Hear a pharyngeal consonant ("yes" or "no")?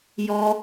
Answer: no